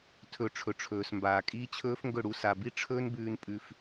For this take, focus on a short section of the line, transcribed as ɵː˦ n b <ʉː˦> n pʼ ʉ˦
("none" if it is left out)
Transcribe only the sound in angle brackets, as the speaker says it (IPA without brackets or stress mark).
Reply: ʉː˦